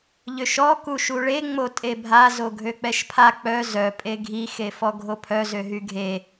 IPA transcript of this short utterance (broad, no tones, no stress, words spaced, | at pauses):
ʎøʃɔ kuʃuɭe ŋ͡motʼebʱa zoɡʱøk͡pɛʃpʰa k͡pœ zœ pʼeɡʱi xefɔɡʱopʰœ zøɦyɡʱe